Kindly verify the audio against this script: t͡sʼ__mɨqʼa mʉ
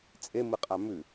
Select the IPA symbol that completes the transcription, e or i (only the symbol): e